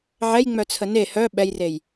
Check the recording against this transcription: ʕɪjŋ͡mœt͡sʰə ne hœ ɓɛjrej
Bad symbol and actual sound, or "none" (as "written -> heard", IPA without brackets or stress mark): ɪ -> ɛ